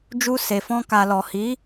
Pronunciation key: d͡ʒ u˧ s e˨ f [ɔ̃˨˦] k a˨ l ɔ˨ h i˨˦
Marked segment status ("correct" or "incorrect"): incorrect